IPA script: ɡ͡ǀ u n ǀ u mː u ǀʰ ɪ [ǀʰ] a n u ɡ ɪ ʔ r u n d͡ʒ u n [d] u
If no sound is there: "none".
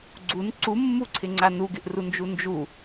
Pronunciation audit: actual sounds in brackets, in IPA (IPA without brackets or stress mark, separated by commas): ŋ͡ǀ, d͡ʒ